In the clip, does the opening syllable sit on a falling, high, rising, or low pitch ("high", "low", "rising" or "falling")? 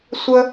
high